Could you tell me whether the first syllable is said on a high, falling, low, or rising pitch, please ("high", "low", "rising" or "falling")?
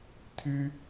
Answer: high